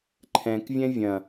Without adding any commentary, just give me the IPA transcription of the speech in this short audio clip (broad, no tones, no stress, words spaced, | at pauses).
ǃʰɛ̃kvʲɛ̃ vʲɐ̃